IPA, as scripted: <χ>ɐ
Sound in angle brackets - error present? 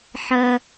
yes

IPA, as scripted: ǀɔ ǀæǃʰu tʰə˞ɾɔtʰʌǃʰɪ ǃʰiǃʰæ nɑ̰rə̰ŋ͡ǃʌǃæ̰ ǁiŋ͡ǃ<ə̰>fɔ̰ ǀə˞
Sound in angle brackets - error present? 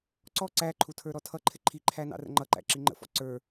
no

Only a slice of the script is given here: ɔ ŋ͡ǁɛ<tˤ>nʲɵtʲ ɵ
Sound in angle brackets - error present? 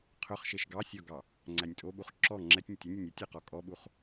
yes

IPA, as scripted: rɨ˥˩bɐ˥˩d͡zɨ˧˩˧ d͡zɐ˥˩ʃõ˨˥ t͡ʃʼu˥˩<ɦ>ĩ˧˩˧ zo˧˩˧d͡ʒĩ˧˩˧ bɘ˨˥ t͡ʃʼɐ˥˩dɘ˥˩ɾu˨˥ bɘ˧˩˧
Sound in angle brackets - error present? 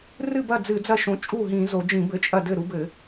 no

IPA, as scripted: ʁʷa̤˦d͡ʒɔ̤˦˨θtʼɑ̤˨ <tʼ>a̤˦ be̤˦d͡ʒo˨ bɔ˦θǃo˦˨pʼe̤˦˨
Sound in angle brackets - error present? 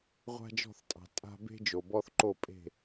no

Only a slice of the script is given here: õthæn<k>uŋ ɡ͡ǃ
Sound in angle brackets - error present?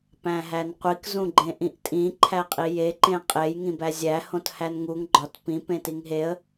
yes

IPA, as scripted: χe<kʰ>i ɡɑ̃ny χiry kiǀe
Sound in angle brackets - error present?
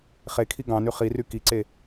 no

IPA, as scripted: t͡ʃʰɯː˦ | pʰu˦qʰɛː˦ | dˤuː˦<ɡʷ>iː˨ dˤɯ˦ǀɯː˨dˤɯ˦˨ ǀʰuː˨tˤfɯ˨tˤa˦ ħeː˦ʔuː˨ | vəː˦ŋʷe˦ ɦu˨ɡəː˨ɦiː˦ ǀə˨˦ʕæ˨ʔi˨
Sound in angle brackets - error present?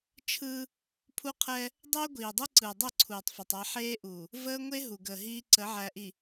no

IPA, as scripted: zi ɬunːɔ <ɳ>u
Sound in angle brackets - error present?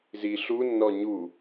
yes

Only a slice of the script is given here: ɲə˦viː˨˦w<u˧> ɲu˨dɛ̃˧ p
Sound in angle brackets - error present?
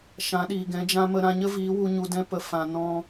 no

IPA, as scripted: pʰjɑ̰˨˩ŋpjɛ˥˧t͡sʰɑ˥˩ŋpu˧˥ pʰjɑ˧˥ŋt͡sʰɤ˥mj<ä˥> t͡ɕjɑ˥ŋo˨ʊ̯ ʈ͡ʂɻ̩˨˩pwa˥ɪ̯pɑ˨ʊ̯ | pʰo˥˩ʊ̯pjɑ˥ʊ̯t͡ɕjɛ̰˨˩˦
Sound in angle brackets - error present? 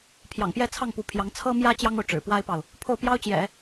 no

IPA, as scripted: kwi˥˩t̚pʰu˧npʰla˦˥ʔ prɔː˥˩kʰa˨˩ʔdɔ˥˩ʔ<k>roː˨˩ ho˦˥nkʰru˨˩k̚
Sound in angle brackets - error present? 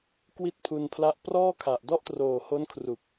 yes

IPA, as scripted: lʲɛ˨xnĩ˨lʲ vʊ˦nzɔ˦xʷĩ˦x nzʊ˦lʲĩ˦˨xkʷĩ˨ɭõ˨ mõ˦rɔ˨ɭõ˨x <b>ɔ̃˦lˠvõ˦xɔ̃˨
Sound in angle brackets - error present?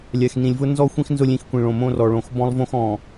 no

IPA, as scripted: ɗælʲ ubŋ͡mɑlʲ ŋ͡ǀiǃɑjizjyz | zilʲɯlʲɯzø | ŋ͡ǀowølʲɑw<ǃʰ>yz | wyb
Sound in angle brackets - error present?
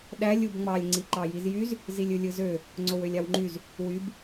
yes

